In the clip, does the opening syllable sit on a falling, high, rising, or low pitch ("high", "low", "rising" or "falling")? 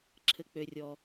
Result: low